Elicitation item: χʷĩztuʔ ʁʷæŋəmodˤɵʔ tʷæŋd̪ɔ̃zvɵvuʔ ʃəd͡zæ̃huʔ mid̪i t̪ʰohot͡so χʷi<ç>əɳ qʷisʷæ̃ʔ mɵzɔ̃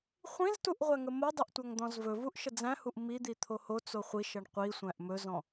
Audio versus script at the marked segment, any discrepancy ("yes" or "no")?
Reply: yes